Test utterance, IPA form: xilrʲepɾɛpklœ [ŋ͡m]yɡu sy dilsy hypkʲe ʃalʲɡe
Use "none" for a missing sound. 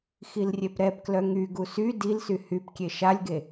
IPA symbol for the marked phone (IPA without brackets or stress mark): ŋ